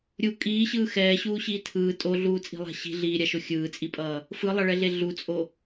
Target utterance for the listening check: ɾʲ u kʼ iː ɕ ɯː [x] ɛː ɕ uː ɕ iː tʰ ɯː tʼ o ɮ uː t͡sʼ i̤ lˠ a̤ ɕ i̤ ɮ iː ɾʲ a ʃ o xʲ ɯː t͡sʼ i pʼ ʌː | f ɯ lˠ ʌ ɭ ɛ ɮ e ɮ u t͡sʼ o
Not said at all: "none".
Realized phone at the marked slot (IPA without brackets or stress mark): x